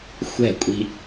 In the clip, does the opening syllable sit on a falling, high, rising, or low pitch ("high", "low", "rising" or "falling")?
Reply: falling